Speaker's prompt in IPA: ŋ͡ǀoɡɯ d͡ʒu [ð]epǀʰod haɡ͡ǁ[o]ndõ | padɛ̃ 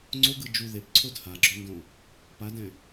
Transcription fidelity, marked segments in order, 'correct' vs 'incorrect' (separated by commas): correct, correct